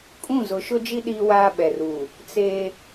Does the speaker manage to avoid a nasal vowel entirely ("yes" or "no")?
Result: no